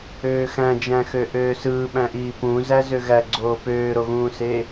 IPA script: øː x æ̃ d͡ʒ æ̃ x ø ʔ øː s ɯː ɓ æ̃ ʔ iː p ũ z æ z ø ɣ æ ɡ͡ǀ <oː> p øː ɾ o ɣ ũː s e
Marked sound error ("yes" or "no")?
no